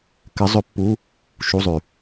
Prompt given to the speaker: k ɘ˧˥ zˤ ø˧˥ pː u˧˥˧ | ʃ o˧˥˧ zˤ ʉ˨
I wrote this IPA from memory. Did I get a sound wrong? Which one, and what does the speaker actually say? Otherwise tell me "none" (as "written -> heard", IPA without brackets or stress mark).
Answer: o˧˥˧ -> u˧˥˧